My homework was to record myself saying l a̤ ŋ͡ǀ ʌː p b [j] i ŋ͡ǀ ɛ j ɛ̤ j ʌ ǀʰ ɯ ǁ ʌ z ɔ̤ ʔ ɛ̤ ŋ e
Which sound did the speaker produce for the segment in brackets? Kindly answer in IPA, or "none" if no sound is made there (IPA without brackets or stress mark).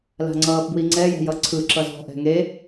w